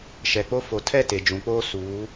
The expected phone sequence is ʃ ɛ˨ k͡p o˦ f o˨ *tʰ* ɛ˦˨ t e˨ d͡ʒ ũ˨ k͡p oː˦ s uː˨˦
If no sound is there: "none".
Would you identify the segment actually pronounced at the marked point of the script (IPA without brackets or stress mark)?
tʰ